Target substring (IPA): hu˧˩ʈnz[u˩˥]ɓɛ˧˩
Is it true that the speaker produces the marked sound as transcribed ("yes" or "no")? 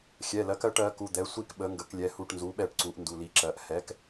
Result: yes